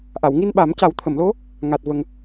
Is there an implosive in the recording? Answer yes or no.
yes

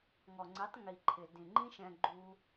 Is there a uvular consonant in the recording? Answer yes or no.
no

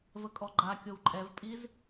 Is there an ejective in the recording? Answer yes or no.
yes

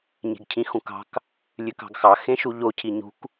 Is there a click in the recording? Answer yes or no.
no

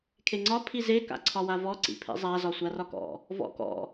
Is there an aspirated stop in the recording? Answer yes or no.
yes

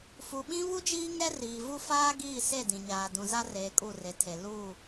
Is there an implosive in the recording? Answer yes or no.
yes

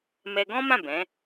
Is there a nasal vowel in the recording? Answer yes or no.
yes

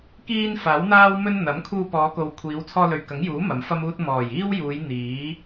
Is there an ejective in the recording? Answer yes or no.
no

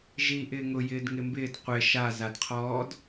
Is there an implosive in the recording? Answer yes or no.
no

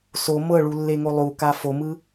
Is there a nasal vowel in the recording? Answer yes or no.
no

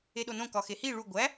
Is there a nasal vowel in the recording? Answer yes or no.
yes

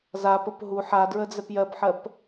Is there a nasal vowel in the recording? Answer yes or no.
no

